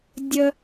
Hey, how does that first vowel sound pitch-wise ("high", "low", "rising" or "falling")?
high